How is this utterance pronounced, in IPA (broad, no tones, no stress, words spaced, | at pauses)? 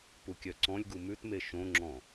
pukʲœǀɔ̃lʲɡu mʉtme ʃõŋ͡ǁɔ̃